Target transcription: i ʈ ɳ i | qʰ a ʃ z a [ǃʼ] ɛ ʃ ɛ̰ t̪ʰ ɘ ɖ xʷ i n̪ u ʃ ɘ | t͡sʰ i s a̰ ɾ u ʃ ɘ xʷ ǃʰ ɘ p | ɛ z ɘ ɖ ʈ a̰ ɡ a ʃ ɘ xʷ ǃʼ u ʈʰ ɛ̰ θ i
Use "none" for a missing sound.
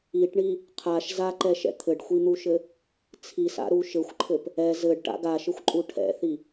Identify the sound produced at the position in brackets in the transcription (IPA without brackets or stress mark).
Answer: ǃ